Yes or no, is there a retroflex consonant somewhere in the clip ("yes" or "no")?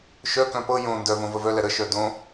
no